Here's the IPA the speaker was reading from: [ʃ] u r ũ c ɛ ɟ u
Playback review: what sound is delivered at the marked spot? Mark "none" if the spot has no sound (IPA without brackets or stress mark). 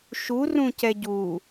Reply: ʃ